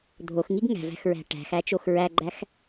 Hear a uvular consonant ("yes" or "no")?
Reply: no